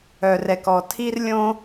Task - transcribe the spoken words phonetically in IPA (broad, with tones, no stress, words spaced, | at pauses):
œ˩rɛ˩kɔ˩ tʰi˥rlʲõ˥